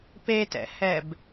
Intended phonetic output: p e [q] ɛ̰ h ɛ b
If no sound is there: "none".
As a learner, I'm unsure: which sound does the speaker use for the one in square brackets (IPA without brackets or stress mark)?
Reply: t